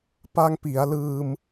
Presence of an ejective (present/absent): absent